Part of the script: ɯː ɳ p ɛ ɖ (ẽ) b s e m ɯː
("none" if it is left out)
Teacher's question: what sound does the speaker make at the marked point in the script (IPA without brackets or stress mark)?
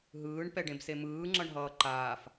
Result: ẽ